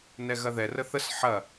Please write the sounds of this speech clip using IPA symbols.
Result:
n ɛ ɣ ɐ ð ɛ r ə θ ə s ħ ɐ

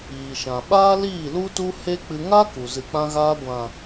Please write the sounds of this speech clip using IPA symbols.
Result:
iː˨ ʃ ã˨ ɓ aː˦ l iː˦˨ l u˧ t u˧ h e˦ k͡p ɨ˧ ŋ a˦ k u˨ z ɨ˨ k͡p ã˧ ɣ aː˧ ɡʷ ã˨

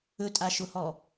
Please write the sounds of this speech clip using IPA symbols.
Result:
ɵ tʼ a ʃ ʊ h ɔ

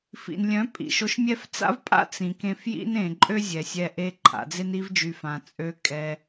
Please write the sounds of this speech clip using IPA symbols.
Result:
f ḭ˨ n lʲ œ̃˨˦ pʼ ḭ˨ ʃ o˧ ʃ mʲ ɛ˦ f t͡s a̰˦ v pʼ a̰˦ t͡s ĩ˨ k ẽ˧ f j ḭ˦ n ẽ˨ ǃʼ ø˦ zʲ ɛ˨ sʲ ɛ˧ ʔ e˧ ǃʰ a̰˨ d͡z e˧ n i˧ v d͡ʒ y˨ f ã˨ t͡sʼ ø˧ kʼ ɛ˧

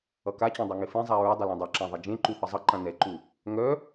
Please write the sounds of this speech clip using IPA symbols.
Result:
ʌ k a t͡ɕ œ̃ dˤ ʌ ŋ e f ẽ zˤ a ɹ ɵ dˤ ʏ l ɛ̃ dˤ ɵ ǁ ã ðˤ e d͡ʒ ẽ ǃ u θ ʌ zˤ ʌ ǃ ã n ɛ ǃ u | ŋ œ

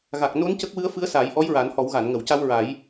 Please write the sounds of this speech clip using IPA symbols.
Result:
ɣ a˨˩ k̚ n o˧˥ n c ə˦˥ k̚ w ɨ˧˥ ə̯ f ɨ˧˥ ə̯ s aː˨˩˦ j ʔ ɔ˧˥ j ɹ a˨˩˦ n h ɔ˨˩˦ w ɣ a˨˩˨ n ŋ ə˨˩˨ w c a˧ w ɹ a˨˩˦ j

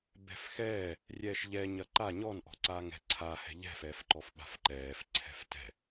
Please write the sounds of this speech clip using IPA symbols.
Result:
b ɛ̤ f x ɛː | rʲ ɛː ʃ ʎ ɛ ɲ ɐ ǃ a ɲ ɔ n ʔ ɔ̤ ǀ aː ŋ ɛ̤ ǀʰ a h ɛ̤ ʎ ɛ̤ f ɛː f ǃ ɔ f ɓ a̤ f ǃ ɛː f ǀʰ ɛ̤ f t ɛ̤

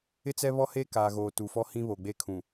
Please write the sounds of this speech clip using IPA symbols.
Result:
ɪ˦ t͡s ɛ˦ β ɔ˦ h eː˦ k aː˨ ɣ oː˨ t u˨ f ɔ˦ h ĩ˦ β o˨ ɡ͡b e˦ kʰ ũ˨

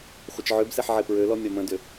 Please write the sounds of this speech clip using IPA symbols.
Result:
χʷ ə t͡ʃ ʕ ø b s ɛ ħ ʕ e p ɹ ø l ɔ mʲ ɒ m ə̃ d ʏ

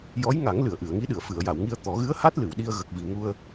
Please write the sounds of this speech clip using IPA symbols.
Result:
j ɔ˧˥ j ŋ a˨˩˦ ŋ l ɨ˨˩˨ ə̯ ʔ ɨ˨˩˨ ə̯ ŋ i˧˥ ɗ ɨ˨˩˨ ə̯ f ɨ˨˩˨ ə̯ j a˨˩˨ w ŋ i˧ ə̯ t̪ ɔ˨˩˦ ɣ ɨ˧˥ ə̯ h a˦˥ t̚ l ɨ˨˩˨ w ɗ i˧ ə̯ ɣ ə˨˩ k̚ v i˨˩ ŋ u˧ ə̯

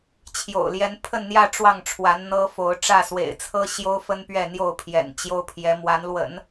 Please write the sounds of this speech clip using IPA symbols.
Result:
t͡ɕʰ j o̰˨˩ ʊ̯ l j ɛ˧˥ n pʰ ə˥˧ n n̪ j ä˥˧ ʈ͡ʂ w ɑ˥˩ ŋ ʈ͡ʂʰ w a˧˥ n n̪ ɤ˥ f o˧˥ ʊ̯ ʈ͡ʂ ä˥˩ s w ḛ˨˩ ɪ̯ t͡sʰ ɤ˥ ɕ j o˥ ʊ̯ f ə˥ n p ɥ ɛ˥˧ n̪ j o˥˩ ʊ̯ pʰ j ɛ̰˨˩ n t͡ɕ j o˥ ʊ̯ pʰ j ɛ˧˥ m w a˧˥ n l w ə̰˨˩˦ n

